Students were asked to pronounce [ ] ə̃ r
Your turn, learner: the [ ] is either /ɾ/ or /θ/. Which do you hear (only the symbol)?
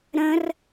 ɾ